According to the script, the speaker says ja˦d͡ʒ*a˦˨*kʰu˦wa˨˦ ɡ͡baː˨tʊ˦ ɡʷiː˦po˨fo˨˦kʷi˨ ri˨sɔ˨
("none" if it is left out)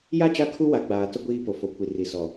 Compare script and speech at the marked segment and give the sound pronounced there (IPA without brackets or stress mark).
a˦˨